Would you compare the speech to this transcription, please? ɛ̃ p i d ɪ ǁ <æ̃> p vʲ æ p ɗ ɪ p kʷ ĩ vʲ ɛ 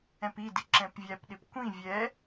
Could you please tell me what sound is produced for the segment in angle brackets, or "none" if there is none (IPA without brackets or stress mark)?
ɛ̃